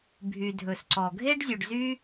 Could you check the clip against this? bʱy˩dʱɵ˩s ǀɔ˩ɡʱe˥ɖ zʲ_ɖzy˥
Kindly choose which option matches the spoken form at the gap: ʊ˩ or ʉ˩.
ʉ˩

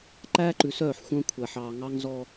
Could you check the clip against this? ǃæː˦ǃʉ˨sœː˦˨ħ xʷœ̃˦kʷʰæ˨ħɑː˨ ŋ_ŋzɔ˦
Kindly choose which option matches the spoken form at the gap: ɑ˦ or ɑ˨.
ɑ˦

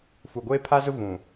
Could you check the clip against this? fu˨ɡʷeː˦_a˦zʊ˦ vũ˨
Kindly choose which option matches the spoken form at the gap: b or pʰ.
pʰ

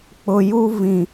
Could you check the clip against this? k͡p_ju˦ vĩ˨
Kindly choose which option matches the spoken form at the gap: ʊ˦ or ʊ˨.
ʊ˨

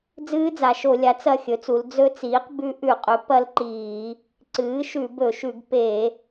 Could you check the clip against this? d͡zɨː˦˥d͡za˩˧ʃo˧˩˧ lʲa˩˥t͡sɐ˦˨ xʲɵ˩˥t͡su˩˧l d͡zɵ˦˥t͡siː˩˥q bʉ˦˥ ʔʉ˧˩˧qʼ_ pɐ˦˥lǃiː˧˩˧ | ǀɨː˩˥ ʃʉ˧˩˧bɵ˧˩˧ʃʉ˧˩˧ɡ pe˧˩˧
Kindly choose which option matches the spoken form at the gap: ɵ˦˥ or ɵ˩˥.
ɵ˩˥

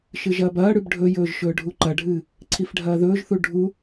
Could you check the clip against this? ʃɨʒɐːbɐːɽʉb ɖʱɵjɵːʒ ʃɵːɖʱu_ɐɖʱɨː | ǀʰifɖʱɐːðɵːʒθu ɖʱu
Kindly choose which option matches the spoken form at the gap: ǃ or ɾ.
ǃ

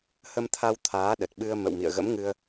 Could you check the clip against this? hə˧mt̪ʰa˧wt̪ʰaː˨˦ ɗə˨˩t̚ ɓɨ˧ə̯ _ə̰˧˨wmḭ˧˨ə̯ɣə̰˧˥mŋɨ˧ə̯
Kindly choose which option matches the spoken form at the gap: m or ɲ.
m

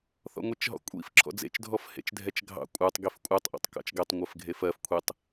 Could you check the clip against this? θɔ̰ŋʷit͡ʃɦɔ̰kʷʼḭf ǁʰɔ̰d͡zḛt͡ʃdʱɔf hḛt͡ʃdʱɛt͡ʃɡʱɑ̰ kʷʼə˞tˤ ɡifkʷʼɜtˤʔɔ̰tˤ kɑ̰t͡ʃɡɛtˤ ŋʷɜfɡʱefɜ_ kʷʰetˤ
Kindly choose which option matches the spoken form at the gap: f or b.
f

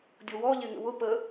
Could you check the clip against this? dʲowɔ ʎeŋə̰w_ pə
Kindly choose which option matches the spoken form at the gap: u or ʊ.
ʊ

